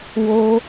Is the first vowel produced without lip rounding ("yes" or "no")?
no